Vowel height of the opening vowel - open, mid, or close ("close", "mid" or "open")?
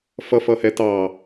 mid